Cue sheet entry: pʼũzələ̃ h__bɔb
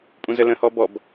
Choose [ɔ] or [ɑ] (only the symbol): ɔ